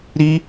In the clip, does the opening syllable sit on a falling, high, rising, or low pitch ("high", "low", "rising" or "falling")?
high